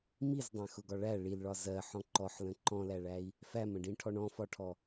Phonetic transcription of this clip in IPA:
m i z dˤ æ̃ x ʊ ɡ ɒ ɭ æ ɭ i l ɭ ɒ z ɜ ħ ɔ̃ ǃ ɔ ħ l ə̃ ǃ ɔ̃ l æ ɭ æ i̯ | f æ m ə̃ ɖ ĩ ʈʰ ɔ ɳ ɔ̃ f ɒ ʈʰ ɔ

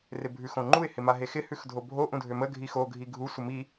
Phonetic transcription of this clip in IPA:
r ɪ bʱ ʉ x õ ŋ͡ǃ u ɪ̯ h ɪ m a ɦ e x ɪ h ʉ x dʱ o bʱ o ʔ ũ dʱ ø m ə ɡʱ i x o ɡʱ i ɡʱ u sʷ ə m i

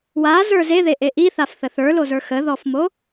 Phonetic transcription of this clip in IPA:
w a z ə˞ z e ð e ʔ e ʔ i θ a f θ ə θ ə˞ l o z ə˞ x ə ð ɔ f m o

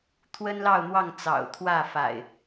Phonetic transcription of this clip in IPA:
t̪ʰ w ə˦ n l ɑ˥˨ ʊ̯ n̪ w ɑ˥˨ ŋ t͡s ɑ̰˨˩ ʊ̯ t̪ʰ w ä˥˨ f a̰˨˩ ɪ̯

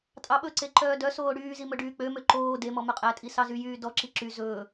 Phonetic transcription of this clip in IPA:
tʼ ɑ ɓ ɵ ǀ e ǃ œː d œ s oː ɽ yː z i m ɵ ɖ yː k͡p ø m ø ǃ oː d e m ɔ m œ qʼ æ tʼ i s ɑ z y j yː d ɔ ǁ i ǁ y z ɵː

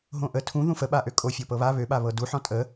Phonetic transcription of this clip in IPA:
ɦ õ ʔ ə tʰ ũ ð ũ f ə ɓ a ʔ ø kʼ o fʲ o p ɤ β a β ø ɓ a β ɤ d u ħ ɔ̃ tʼ ə

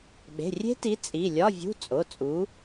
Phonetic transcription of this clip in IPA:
ɓ e̤˩˧˩ rʲ e̤˦˥ t i˨˦ t͡sʼ i˩˧˩ lʲ ɒ˧˥˧ vʲ ṳ˧˥˧ t͡sʼ o˩˧˩ t͡sʼ u˨˦

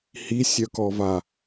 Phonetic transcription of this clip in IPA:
h i sʲ œ k ɔ v a

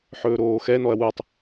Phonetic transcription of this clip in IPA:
ħ ɵː ɾ oː x ɛ n ɔ ɐ̯ w u tˤ

